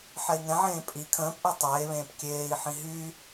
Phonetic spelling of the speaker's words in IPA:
ħ ɛ i̯ ŋ ɛ̃ ʕ ẽː pʼ i kʰ ə̃ː p ʔ ɛ tˤ eː β ẽː p kʲ eː i̯ ħ ĩ ɦ y

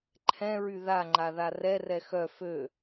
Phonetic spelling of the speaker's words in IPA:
ǃʰ ɛ̃ ɹ y ð a ŋ͡ǃ a ð a r ɛ r ɛ x œ f ø

